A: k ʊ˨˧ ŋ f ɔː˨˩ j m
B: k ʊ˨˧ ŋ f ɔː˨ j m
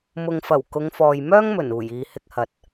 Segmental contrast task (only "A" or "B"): B